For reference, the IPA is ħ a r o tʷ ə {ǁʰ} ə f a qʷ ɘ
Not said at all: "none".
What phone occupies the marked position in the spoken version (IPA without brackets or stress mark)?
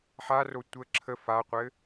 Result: ǁʰ